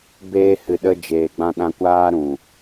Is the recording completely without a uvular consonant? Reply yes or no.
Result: yes